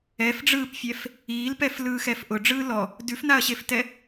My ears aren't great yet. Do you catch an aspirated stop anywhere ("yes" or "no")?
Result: no